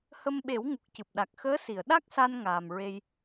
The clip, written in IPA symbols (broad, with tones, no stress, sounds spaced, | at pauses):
h ə˧ m ɓ e˨˩˦ w ŋ u˨˩ k̚ c ɨ˨˩ p̚ ɗ a˨˩ k̚ x əː˧˥ s i˨˩˨ ə̯ ɗ a˦˥ k̚ s a˧ n ŋ aː˨˩ m ɹ e˧ j